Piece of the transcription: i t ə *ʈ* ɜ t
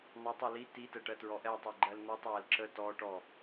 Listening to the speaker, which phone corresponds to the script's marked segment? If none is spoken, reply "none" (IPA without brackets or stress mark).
ʈ